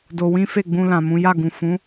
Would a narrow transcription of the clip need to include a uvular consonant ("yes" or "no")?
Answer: no